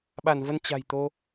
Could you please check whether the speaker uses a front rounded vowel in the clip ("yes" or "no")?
no